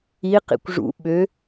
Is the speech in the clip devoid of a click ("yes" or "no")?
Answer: yes